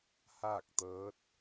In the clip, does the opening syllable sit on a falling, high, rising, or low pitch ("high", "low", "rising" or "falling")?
falling